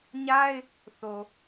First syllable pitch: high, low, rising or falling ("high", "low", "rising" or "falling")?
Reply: high